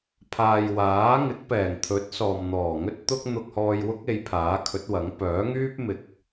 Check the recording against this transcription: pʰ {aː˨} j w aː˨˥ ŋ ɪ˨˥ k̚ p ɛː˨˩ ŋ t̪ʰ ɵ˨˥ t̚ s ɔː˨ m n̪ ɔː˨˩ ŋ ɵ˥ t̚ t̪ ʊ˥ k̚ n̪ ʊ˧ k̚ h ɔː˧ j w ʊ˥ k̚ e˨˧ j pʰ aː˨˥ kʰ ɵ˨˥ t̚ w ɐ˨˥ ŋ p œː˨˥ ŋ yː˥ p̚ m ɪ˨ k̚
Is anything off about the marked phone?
no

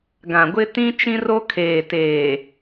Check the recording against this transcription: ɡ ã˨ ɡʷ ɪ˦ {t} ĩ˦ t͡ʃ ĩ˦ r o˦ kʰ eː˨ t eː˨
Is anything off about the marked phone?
no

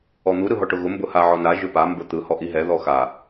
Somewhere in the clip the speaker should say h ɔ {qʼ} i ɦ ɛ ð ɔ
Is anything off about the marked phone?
yes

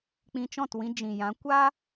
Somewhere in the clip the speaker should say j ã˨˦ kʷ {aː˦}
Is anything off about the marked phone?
no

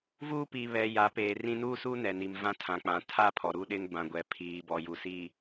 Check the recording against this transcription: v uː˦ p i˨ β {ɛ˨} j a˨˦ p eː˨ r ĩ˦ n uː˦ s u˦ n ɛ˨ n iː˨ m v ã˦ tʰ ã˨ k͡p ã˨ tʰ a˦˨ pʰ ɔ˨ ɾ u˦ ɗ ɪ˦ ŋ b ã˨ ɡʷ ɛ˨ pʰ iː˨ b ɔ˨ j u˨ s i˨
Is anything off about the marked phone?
no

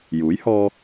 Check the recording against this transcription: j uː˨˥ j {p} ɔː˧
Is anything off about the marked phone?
yes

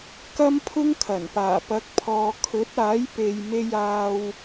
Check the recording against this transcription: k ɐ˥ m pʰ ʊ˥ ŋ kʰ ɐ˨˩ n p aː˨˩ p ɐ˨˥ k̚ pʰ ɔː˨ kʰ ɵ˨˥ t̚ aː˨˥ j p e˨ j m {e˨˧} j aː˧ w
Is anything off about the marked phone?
yes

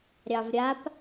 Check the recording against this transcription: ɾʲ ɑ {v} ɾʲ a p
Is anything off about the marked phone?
no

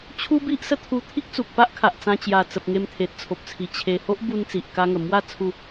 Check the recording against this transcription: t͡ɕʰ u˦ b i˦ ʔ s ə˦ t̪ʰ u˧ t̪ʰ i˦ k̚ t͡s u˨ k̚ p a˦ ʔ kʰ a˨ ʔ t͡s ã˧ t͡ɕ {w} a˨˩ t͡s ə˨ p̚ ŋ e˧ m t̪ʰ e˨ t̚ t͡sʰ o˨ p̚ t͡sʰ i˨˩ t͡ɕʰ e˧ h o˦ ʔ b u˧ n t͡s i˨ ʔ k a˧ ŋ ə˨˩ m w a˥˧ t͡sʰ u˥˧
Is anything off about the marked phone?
yes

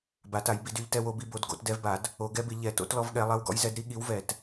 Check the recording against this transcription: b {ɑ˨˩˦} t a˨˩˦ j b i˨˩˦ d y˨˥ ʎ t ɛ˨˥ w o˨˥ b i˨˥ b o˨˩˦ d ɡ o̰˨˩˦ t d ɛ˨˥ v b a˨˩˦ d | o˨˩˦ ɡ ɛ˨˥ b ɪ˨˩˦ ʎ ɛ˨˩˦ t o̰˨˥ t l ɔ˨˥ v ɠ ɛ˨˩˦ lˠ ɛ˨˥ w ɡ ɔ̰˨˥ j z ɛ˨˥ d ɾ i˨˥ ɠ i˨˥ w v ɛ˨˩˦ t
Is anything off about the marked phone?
yes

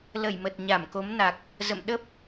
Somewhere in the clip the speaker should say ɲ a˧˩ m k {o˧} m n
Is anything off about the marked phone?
yes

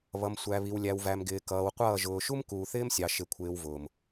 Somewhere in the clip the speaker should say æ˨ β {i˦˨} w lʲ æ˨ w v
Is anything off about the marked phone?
yes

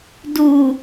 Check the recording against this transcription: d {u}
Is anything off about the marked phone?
no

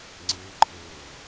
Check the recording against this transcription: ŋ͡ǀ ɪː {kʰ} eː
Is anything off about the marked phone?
yes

